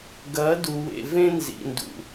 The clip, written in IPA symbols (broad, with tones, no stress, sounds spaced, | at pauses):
ɡ ɐ˨˦ d u˨ w ḛ˨ v ẽ˦ n z ḭ˨ n d ṵ˨